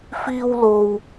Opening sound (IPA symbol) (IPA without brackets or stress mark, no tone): f